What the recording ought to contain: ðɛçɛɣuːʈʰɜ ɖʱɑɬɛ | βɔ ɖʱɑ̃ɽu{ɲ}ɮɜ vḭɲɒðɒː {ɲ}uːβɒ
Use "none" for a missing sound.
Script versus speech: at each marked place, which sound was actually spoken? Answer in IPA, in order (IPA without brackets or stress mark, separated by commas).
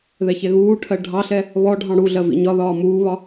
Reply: none, m